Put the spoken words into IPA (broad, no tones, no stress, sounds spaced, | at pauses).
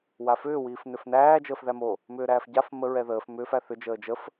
w a f ʏː w iː f n ʏ f n æː d͡ʒ əː f ð æ m o | m ʏː ɾ æː f ɟ a f m ə ɹ ɛ ð əː f m ʏː f æ θ ʏ d͡ʒ əː d͡ʒ ə f